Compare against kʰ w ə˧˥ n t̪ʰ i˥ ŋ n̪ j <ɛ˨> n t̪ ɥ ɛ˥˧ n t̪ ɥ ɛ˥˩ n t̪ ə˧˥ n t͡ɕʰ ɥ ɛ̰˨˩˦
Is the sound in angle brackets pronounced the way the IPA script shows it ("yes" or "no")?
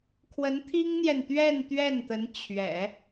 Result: yes